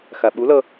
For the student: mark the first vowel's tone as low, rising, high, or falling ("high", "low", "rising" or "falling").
low